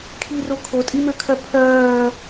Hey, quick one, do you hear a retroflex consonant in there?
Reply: no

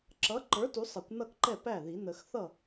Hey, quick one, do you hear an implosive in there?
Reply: no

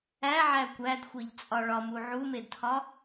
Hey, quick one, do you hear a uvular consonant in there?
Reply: no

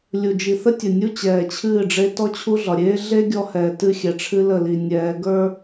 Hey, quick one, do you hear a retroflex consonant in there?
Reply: yes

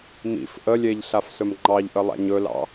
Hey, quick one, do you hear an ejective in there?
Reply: no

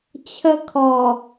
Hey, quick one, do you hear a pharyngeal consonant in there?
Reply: no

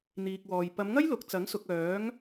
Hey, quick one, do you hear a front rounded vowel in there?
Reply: yes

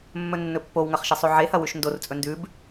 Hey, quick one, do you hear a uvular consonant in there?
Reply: yes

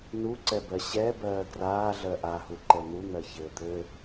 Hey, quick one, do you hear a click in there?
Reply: yes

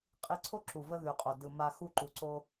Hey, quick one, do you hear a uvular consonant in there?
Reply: yes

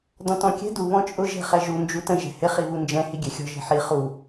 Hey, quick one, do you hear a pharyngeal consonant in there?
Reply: yes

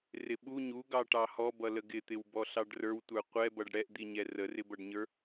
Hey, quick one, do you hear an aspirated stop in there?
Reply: no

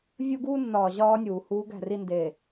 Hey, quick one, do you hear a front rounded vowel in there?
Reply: no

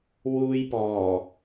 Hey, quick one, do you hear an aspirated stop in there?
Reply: no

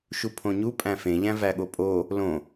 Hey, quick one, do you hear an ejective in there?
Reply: yes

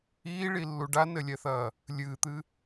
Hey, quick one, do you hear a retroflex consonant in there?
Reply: yes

